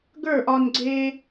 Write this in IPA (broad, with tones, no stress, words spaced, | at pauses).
ɡə˞˦˨ʔɒ˧nɡ͡ǀe˦